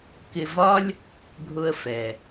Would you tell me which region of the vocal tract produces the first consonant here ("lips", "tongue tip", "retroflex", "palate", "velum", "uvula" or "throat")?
velum